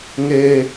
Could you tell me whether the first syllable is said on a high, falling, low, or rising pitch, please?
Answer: high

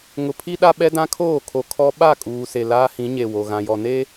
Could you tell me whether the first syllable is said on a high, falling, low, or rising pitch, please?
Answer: low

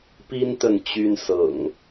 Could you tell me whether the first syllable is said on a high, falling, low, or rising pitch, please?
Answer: high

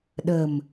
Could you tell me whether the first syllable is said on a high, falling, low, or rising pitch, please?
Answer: low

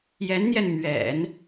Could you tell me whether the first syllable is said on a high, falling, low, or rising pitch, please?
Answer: rising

